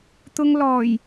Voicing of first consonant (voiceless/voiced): voiceless